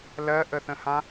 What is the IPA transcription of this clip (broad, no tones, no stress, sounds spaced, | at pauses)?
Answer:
l ɜ ʔ ə θ ə̃ h ã